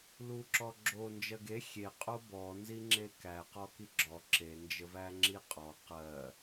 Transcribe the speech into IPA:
l u ǁ ɔ ɡ͡ǁ o n d͡ʒ ɜ ɡ e xʲ e qʼ o b ɔ n z i ŋ͡ǁ e k æ q ɔ k i ɡ͡ǁ ɔ ǁ e n d͡ʒ ə v æ ŋ͡ǁ i qʼ ɔ q ɜ

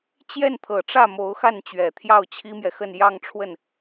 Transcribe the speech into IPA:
t͡ɕ j ɛ˥˩ n t̪ʰ ɤ˨˩ ʈ͡ʂ ä˥˩ m o˧˥ ʊ̯ x a˥˩ n t͡ɕ ɥ ɛ˨˩ t̪ʰ j ɑ˥˩ ʊ̯ t͡ɕʰ i˥ m j ɛ˨ x ə˥˧ n j ɑ˥˧ ŋ ʈ͡ʂʰ w ə˥˩ n

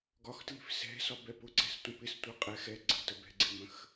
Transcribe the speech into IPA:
ɡ ɒ x t l i̤ f s ɛ̤ s ɒ b ɛ p ʊ ǀ ɛ̤ s tʷ ə̃ p ɪ s tʷ ɜ qʼ ɛ x ɛ ɡ͡ǀ ə̤ t ə b ɛ̤ ɡ͡ǀ ɪ m ə̃ x

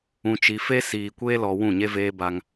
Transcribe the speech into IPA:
ũ˨ t͡ʃ i˨ f e˦ s iː˨ kʷ eː˦ l ɔ˨ w ũ˦˨ ɲ e˦ v eː˦ b a˦ ŋ

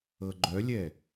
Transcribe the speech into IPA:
ɤ ɡ͡ǃ œ lʲ ɛ

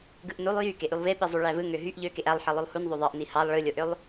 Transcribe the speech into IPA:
ɡ ɯ ʔ n u lˠ j y k e ʔ y lˠ v e p i zˤ u ɭ æ v ɯ ŋ ø ɦ y ʔ ʎ ø k e ʔ æ lˠ ħ i lˠ o lˠ h u n ðˤ o ðˤ ɑ ʔ n i h ɑ lˠ ɭ ɯ lʲ o ʔ ø lˠ

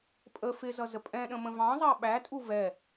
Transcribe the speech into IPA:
pʼ ə f ɪ z ʌ z ə pʼ ɛ̃ ɗ ə̃ m ə̃ v ɑ̃ zˤ ɑ ɓ æ tʼ u v ɛ

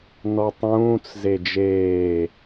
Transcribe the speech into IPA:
n ɔ tˤ ũː t͡s z e d͡ʒ eː

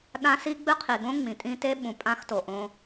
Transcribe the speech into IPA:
ɗ ã˥ s i˥ ɡ͡b ɨ˥ qʰ i˨ ɡ õ˥ ŋ͡m ĩ˩ tʼ ĩ˦ t e˥ ɓ ũ˨ pʼ ã˥ x t o˩ ʔ õ˦

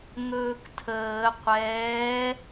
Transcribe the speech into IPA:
ŋ ɵː k tʰ əː qʷ ɛː

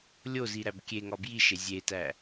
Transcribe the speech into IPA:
lʲ o z i ɾ æ b kʲ e ŋ ɒ b j i ʃ e zʲ e t æ

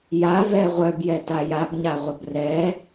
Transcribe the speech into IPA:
j a v ɛ ʁʷ œ b j ɛ t a j a b ɲ a ʁʷ ə b r ɛ

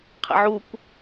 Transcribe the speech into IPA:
qʰ ḛ ʕ u kʷ

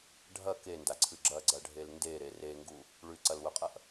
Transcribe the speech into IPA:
ɖʱ ɐ k e n d a ǀʰ ɨ ɡ͡ǁ ɐ ɡ͡ǀ ɐ ɖʱ e l n d e ɾ e r e ŋ ɡ u | ɭ ʉ ǀ ɐ l w ɵ qʼ ɐ ʔ

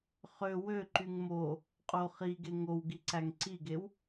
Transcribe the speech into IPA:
χ ø w ø ǃ y ŋ m o | qʼ o χ i ɡ e ŋ o w ɡ i ǀ æ ŋ ǀ i ɡ e w

